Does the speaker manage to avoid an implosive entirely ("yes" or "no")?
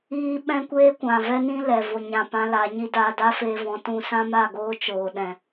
no